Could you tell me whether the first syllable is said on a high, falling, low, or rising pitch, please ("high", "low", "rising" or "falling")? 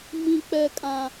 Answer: high